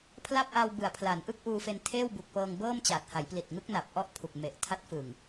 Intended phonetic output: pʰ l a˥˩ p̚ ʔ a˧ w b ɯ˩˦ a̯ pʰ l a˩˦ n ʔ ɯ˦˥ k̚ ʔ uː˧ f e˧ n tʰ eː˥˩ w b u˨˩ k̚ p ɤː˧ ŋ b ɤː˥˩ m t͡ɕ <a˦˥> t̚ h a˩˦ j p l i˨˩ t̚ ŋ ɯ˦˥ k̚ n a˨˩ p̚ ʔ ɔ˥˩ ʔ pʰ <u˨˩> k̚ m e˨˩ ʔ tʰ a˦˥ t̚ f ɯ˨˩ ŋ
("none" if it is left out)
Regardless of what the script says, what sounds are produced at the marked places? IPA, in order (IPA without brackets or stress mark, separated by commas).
a˨˩, u˨˩